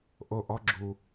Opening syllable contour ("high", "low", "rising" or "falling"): falling